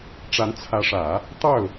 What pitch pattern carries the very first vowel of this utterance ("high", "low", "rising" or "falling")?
rising